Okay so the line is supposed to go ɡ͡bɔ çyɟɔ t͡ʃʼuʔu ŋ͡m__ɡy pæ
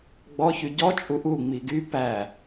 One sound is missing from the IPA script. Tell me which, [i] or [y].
i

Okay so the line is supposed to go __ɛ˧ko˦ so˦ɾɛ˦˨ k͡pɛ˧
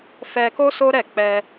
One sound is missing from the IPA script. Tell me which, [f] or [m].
f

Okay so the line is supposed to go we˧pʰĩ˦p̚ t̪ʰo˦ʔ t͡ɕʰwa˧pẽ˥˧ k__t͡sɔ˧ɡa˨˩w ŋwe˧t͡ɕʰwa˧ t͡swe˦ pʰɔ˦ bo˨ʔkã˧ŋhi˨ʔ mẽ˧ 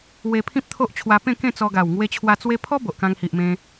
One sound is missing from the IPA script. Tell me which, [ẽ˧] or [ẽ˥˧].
ẽ˥˧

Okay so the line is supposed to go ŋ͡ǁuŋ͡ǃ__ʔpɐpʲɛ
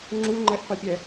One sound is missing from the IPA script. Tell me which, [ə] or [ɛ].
ɛ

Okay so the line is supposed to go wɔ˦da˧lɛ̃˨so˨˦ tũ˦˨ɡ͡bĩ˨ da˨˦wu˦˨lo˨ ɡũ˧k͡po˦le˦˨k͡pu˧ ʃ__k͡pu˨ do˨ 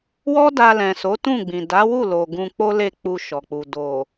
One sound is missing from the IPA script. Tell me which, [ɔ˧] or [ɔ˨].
ɔ˨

